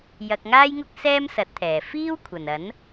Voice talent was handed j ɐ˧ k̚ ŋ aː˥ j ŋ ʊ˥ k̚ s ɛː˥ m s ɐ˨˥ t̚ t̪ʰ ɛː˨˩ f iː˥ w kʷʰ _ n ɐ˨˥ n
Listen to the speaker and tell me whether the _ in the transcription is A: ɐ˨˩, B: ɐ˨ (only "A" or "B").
A